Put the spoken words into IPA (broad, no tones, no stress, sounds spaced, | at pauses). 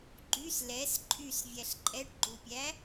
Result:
ɡ͡ǃ y s l ɛ s ǃʼ y s vʲ æ ɬ ǃʼ ɛ ʈ ɡ͡ǃ u pʲ æ